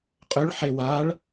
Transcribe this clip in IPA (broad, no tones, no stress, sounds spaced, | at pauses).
qʼ ʏ ɭ ħ e w a ɭ